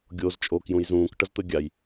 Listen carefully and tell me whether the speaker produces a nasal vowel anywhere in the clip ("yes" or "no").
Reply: yes